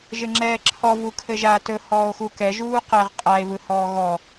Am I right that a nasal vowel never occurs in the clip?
yes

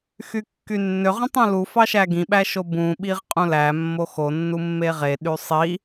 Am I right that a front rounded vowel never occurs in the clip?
no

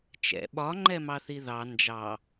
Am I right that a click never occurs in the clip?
no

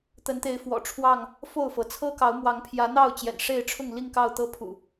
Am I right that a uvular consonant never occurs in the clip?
yes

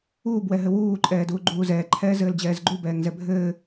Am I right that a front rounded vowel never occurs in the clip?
yes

